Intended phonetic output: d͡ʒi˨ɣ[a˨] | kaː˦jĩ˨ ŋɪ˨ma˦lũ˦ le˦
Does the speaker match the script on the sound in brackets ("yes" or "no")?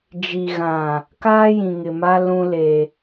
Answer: no